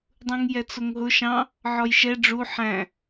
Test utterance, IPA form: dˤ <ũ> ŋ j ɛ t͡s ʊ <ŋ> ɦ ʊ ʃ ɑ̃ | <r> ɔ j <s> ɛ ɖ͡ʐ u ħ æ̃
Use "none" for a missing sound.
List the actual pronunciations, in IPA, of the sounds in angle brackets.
ũ, ŋ, ʕ, ʃ

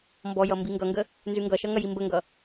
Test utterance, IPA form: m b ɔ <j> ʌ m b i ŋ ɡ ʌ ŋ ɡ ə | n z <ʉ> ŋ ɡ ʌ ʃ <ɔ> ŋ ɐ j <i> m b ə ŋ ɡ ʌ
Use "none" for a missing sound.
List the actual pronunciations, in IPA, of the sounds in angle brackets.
j, ʉ, ʌ, i

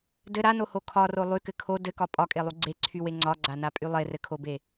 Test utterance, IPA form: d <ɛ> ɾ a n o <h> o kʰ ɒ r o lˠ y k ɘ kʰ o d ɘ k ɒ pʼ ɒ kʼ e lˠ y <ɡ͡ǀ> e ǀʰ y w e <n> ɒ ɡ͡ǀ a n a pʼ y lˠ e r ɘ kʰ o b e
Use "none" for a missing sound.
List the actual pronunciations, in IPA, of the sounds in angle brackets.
ɘ, h, ɡ͡ǀ, ŋ͡ǀ

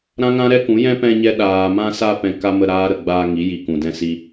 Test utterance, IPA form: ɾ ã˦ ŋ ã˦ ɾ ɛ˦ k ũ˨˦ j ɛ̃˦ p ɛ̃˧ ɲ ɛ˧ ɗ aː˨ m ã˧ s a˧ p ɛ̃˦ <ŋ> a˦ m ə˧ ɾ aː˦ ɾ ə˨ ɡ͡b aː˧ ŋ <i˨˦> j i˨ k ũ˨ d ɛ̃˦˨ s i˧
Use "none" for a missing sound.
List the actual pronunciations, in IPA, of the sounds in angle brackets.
k, i˨˦

